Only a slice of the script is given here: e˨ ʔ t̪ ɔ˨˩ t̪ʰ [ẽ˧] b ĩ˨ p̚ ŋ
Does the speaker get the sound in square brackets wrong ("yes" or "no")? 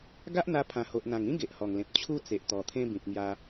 yes